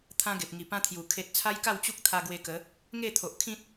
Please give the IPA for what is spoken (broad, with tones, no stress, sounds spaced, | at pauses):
t̪ʰ ã˦ ɡ e˨ p̚ ŋ i˨˩ p ã˦ t̪ʰ j u˨˩ kʰ e˨ t̚ t͡sʰ a˦ j k a˥˧ w t͡ɕ u˦ k̚ t̪ʰ a˧ ɡ w e˧ k ə˨˦ | ŋ e˥˧ t̪ʰ o˨ ʔ kʰ ĩ˦ t̚